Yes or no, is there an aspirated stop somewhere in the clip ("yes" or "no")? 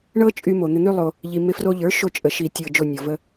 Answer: no